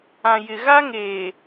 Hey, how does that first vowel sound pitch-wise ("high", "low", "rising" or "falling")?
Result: low